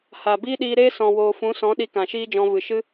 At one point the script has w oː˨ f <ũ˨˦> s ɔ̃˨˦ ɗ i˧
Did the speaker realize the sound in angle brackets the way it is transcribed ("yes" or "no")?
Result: yes